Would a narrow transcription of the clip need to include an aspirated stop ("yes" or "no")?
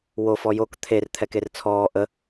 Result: yes